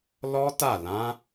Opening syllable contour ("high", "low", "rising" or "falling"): high